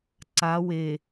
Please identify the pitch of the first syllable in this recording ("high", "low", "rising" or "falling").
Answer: rising